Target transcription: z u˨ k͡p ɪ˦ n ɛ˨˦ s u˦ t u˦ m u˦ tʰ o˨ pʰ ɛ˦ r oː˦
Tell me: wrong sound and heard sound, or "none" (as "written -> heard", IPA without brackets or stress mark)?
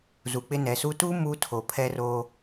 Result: none